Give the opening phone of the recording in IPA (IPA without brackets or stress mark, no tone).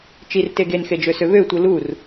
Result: t͡ʃ